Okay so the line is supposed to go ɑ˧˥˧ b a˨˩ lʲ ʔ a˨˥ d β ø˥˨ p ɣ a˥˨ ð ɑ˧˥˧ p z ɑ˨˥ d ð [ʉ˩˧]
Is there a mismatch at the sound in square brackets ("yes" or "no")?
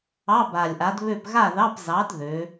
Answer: yes